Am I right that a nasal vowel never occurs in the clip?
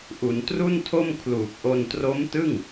yes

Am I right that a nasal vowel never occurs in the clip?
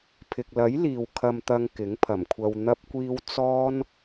yes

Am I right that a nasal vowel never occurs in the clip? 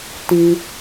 no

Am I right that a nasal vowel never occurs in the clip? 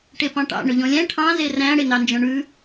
no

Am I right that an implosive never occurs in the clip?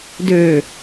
yes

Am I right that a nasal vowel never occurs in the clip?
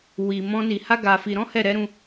no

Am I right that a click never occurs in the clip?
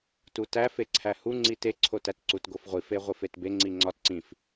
no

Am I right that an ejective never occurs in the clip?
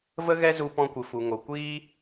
yes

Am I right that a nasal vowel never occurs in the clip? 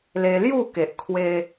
yes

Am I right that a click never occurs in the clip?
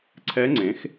no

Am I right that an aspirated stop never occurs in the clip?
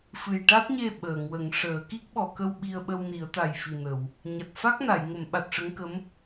yes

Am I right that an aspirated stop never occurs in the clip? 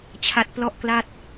no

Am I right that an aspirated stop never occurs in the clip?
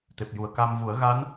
yes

